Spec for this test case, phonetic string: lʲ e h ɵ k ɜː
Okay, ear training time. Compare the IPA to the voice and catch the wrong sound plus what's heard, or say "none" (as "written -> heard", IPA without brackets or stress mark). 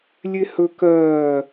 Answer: none